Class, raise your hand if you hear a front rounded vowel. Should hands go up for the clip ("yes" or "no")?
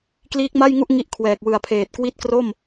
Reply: no